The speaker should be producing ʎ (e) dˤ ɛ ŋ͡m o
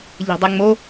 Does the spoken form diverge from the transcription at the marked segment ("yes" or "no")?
yes